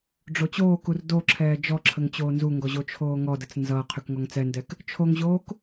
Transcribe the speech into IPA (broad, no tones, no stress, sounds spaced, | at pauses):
ɖ͡ʐ o t͡ɕ oː k u r d o ǁʰ ɛː d͡ʒ ɔ ǁʰ ə ŋ t͡ɕ oː n z u ŋ ɡ ɔ ʑ o t͡ʃʰ oː ŋ ɔ d ə t͡s n z ʌ qʰ y k ŋ ɔ ŋ t͡s ɛ n d ɛ k | t͡ʃʰ o ŋ ʑ oː k